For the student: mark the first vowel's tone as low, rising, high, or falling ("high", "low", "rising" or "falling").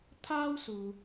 high